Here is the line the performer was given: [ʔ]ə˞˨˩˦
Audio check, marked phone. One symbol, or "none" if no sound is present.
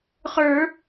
χ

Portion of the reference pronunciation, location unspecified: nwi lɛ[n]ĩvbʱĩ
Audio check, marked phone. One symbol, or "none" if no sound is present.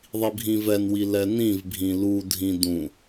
n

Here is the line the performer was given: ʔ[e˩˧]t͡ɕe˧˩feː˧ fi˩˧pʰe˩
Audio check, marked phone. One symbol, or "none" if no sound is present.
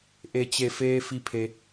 e˩˧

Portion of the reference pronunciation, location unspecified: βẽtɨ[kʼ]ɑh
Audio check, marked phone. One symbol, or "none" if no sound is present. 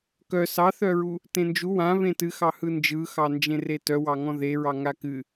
x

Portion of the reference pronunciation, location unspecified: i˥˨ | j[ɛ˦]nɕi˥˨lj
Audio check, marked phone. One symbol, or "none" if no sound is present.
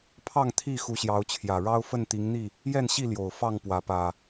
ɛ˥˨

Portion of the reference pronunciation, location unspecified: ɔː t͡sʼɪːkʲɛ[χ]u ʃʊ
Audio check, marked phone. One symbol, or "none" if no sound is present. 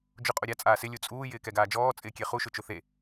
χ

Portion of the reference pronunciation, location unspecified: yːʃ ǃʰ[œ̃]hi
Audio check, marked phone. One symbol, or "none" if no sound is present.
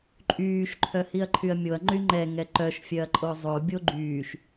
œ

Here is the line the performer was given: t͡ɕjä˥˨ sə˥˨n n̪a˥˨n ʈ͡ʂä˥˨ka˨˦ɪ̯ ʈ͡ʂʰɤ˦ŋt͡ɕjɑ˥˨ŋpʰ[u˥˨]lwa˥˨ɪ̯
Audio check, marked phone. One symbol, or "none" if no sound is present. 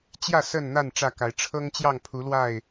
u˨˦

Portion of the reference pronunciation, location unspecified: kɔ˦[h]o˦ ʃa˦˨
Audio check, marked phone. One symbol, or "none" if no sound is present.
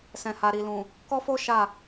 f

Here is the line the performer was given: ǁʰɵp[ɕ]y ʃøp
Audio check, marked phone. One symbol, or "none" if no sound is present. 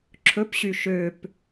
ɕ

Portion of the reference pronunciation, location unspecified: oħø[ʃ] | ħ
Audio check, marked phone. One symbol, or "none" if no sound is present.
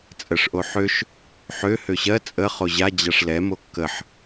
ʃ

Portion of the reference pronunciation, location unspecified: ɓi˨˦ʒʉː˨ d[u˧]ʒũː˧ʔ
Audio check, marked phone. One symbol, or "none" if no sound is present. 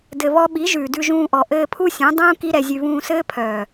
ʉ˧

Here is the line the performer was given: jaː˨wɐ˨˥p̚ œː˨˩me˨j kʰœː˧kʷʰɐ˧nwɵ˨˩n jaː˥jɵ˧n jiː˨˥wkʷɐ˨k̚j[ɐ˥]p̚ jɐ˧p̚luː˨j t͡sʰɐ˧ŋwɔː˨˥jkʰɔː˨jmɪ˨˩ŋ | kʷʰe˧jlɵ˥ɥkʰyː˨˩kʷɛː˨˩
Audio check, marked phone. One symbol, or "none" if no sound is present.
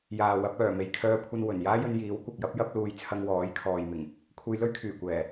ɐ˥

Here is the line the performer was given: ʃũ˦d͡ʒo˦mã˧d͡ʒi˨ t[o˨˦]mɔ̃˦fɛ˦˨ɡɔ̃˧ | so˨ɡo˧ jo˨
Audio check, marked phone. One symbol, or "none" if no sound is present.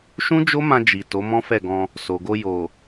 o˨˦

